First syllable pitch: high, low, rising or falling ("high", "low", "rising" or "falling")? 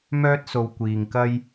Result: high